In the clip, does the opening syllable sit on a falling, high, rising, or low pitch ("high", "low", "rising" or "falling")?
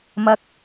rising